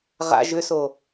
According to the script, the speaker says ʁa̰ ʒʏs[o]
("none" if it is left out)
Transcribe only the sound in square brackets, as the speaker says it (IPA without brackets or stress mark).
o